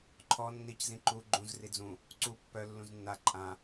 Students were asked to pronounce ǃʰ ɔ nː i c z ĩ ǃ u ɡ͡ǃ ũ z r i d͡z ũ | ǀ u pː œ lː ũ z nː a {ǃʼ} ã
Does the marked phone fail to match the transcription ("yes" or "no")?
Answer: no